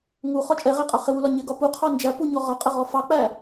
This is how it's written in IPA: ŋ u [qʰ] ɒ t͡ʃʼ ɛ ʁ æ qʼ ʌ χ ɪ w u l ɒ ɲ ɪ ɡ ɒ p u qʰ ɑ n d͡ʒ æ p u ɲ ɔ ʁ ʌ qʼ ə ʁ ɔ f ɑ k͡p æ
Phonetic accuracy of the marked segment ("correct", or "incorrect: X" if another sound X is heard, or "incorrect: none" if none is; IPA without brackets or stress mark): incorrect: χ